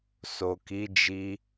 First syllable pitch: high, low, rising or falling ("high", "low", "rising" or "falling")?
low